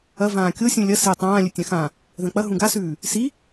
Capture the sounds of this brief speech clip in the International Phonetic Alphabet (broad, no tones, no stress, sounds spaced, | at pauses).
ɐ v ãː kʲ o sʲ ũ lʲ ɐ s e tˤ ãː lʲ ɵ tʲ ã x ã | ð ɐ̃ k͡p ɐ ɦ ũ ɡ a s ʉː | s i